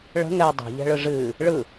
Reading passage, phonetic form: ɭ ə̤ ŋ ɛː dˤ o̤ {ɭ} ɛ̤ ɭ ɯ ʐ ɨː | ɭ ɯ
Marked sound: incorrect: ʎ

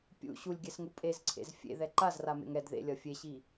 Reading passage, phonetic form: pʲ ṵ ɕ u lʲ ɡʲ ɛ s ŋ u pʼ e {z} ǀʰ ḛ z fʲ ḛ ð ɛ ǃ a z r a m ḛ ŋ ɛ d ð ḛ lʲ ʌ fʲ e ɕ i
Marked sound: correct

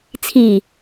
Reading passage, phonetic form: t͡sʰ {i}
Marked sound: correct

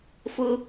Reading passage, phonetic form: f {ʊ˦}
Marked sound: correct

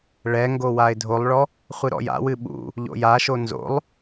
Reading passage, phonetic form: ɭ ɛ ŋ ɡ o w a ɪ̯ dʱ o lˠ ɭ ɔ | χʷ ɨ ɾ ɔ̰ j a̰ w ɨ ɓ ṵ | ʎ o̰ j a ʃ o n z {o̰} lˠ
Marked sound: correct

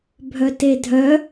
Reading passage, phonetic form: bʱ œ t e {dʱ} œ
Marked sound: correct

